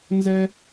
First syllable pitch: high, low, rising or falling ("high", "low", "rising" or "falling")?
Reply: high